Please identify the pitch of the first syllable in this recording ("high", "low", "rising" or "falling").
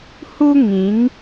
high